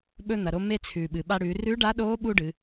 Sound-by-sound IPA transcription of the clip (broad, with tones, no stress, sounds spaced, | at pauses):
ɓ ɵ˧ n̪ ɐ˩ ɾ o˧ m e˧ t͡sʰ ʉː˩ ɓ ɨ˩ ɓ a˧ ɽ ʉː˩˧ r ʉ˧˥ ɖ a˧˥ ɗ oː˧˥ ɓ u˥ ɖ ɨ˩˧